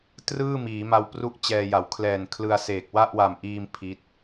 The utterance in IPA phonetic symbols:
t r ɯː˥˩ m iː˩˦ m a˧ w p r u˥˩ ʔ t͡ɕ ɛː˧ j a˩˦ w kʰ l ɛː˨˩ n kʰ l ɯ˧ a̯ s eː˨˩ k̚ w a˥˩ ʔ w a˨˩ m ʔ iː˧ m pʰ i˦˥ t̚

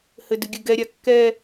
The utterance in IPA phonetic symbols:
h ɘ d ɨ ɡʲ ɘ ɡ ɛ ɾʲ a kː ɛ

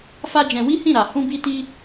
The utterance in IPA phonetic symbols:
f a˦ d͡ʒ ɛ̃˧ w i˦ h ĩ˦˨ ɾ a˧ h ũ˦ b i˦ t i˦

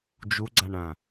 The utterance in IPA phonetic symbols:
d͡ʒ u ɡ͡ǀ a ɳ ã

